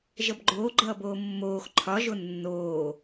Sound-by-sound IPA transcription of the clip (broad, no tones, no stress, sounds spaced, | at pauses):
ʒ ʌ b ɡ͡ǃ oː ɡ͡ǃ ʌː b oː mː oː x ǃʰ ɒ ʒ o nː oː